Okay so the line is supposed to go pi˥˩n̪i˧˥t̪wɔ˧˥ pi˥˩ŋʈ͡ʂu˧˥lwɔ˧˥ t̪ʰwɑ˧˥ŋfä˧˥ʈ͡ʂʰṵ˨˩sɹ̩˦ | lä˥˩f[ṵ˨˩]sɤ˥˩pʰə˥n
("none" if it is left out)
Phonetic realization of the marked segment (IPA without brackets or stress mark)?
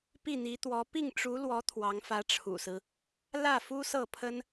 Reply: u˥